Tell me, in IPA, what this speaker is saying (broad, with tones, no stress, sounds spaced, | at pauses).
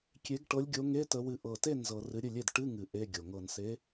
kʲ e˨˦ ɡ ʈ ɤ˨˦ lʲ ɡʲ o˨˦ ŋ e˧˥˧ t ə˨˦ w ɨ˨˦ ʔ ɤ˨˩ t e˥˩ n z ɤ˨˩ r ɨ˨˦ ɾʲ ɨ˥˩ lʲ e˥˩ d ʈ ɨ˧˥˧ ŋ ɨ˨˩ ʔ e˧˥˧ ɡʲ o˨˩ ŋ ɤ˨˩ n s e˨˦